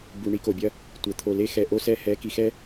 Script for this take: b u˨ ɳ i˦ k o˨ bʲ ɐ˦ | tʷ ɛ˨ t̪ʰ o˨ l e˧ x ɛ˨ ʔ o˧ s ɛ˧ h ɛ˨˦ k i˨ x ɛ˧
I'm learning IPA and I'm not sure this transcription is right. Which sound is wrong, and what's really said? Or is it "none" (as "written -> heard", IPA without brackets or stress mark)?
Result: none